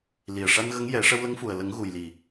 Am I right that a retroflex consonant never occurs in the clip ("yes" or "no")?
no